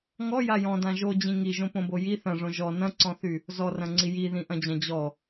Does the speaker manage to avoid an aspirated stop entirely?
yes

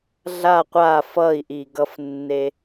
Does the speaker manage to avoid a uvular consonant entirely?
no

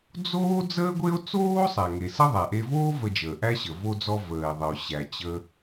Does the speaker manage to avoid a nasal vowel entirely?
yes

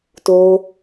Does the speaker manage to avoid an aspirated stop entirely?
yes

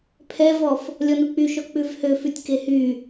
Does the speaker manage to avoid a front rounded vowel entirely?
no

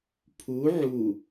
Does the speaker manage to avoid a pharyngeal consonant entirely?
no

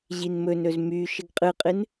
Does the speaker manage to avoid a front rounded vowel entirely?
no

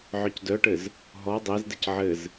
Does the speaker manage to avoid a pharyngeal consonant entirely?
no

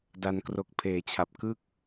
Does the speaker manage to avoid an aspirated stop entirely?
no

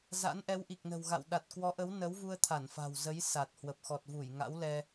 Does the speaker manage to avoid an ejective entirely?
yes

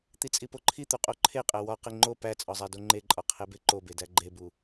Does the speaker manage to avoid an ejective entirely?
no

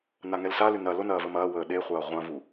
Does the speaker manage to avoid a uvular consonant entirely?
no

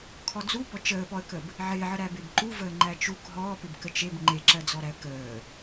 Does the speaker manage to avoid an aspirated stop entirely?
no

